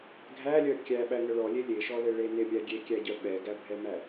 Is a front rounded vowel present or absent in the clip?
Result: present